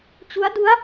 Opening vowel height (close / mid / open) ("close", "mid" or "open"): close